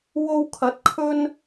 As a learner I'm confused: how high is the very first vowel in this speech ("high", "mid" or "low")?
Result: mid